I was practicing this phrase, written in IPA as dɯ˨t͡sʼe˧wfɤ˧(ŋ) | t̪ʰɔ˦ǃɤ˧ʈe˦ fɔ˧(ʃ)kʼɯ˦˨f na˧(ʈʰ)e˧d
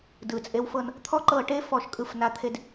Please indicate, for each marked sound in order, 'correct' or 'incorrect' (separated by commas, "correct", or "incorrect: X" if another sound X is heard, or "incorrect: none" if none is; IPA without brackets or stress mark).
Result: incorrect: n, correct, incorrect: t̪ʰ